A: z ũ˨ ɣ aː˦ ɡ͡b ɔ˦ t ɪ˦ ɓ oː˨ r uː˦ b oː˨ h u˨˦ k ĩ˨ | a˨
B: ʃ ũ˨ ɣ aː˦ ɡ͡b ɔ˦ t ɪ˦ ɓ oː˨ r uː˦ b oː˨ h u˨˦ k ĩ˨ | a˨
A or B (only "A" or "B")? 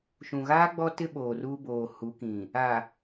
B